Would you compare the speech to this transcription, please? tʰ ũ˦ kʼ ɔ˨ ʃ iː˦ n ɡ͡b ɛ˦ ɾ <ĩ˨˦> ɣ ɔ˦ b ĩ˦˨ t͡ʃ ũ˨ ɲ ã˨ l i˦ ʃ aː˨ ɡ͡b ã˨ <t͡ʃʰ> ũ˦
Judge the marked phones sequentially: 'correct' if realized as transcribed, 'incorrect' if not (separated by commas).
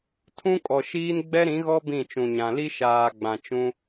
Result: correct, incorrect